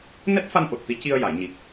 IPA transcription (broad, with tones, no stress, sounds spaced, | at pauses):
n ɛ˦˥ t̚ f a˧ n ʔ o˨˩ t̚ t̪ i˧˥ c i˧ ə̯ j a˨˩˨ j ɲ i˨˩ k̚